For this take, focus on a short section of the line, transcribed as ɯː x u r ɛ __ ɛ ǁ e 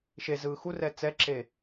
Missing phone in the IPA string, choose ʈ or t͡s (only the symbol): t͡s